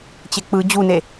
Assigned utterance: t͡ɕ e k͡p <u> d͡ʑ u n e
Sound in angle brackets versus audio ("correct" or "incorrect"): incorrect